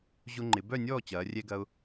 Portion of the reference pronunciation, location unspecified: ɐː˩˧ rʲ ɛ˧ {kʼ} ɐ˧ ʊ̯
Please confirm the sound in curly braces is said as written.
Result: no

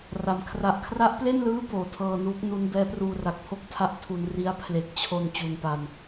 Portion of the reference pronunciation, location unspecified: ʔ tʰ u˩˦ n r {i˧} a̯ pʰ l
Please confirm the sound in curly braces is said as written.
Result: no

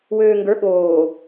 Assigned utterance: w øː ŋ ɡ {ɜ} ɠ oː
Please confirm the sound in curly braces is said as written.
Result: no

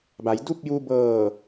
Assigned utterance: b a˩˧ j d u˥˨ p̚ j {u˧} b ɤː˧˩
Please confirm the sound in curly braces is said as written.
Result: yes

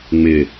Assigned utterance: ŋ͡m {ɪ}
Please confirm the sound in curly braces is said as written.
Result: yes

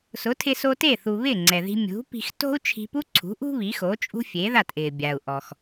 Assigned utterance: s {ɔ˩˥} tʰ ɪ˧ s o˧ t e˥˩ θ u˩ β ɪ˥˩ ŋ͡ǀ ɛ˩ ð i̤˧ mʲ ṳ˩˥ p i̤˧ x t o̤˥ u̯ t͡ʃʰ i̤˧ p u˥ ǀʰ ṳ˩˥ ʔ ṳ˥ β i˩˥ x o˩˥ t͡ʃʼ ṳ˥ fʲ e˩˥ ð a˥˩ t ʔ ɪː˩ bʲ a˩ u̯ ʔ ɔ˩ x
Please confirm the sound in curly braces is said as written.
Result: no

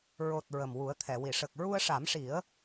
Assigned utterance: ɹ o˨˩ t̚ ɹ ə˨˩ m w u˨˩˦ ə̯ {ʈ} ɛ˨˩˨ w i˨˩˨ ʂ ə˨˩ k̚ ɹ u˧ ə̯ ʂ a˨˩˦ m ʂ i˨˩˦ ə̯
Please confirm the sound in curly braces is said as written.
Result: no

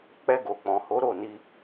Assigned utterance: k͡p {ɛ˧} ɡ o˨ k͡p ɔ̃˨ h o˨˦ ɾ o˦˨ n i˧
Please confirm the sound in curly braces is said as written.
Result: yes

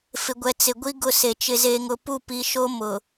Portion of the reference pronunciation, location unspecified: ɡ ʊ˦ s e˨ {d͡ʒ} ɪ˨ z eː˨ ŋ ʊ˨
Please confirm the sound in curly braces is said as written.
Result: no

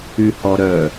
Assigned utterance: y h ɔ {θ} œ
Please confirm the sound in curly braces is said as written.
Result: no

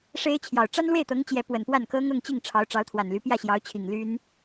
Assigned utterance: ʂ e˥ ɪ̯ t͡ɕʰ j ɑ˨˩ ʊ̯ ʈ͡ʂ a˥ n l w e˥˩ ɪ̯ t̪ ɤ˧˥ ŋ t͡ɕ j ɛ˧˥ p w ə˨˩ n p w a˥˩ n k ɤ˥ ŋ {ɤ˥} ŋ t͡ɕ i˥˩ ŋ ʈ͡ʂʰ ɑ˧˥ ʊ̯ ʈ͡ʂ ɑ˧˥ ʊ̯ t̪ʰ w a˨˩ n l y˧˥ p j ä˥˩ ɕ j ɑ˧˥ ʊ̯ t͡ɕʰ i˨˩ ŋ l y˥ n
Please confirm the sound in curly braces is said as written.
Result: no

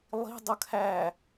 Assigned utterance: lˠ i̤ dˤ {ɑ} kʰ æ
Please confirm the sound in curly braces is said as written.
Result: no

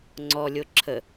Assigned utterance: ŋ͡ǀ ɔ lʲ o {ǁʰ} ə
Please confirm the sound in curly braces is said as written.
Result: yes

